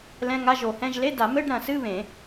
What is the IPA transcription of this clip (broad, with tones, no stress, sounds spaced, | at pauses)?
l ɛ̃˧˥˧ ŋ a˧˥˧ ʒ o˨˩˦ h ɛ̃˧˥˧ ʒ l e˧˥˧ d a˨˩˦ m ɘ˧˥˧ ɖ ɾ ɐ̃˨˩˦ s ɨ˧˥˧ β ẽ˨˩˦